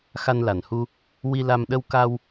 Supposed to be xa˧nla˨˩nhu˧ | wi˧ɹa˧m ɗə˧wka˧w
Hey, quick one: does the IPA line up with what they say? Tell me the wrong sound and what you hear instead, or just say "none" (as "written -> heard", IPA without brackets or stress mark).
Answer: ɹ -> l